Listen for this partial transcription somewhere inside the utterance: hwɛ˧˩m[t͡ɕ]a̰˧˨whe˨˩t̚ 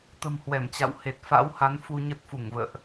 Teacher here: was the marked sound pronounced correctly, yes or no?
yes